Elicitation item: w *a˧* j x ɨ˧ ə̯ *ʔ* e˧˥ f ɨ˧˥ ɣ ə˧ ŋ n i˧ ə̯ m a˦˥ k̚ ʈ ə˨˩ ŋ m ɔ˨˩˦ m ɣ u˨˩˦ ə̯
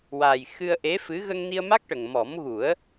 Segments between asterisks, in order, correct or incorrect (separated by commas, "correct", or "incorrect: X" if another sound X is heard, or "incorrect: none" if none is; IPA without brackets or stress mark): incorrect: a˨˩, correct